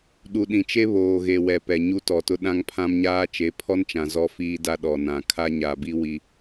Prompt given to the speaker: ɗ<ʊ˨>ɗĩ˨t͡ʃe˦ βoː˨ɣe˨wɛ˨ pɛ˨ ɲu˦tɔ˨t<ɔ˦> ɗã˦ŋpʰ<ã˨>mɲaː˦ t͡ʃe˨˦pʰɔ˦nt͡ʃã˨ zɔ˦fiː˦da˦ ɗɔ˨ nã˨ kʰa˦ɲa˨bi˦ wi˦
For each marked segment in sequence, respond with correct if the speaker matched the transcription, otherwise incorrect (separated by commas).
incorrect, incorrect, incorrect